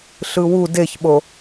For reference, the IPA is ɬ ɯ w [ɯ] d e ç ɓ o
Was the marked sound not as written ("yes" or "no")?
yes